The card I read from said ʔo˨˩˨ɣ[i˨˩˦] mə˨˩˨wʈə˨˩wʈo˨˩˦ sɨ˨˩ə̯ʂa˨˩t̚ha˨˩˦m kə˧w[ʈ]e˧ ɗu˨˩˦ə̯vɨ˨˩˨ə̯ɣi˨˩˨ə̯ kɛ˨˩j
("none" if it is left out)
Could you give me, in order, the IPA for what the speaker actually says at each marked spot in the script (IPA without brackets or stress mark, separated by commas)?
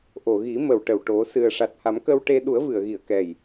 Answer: i˨˩˦, ʈ